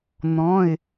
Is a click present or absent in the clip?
absent